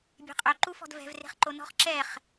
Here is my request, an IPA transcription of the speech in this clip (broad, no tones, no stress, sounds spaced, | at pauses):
bʲ e̤ qʼ ø ǃ u f ɔ̤ d v ɛ̤ v r e̤ χ ǃ o n ɔ̤ χ ǁ ɛ χ